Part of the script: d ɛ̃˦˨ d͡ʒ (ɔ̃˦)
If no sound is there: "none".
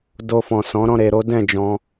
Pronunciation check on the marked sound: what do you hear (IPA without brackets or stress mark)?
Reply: ɔ̃˧